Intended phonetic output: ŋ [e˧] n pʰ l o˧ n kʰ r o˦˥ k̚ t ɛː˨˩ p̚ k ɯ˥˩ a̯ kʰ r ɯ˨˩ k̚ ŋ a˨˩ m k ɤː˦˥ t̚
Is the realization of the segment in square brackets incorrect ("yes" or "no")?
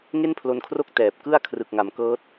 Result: yes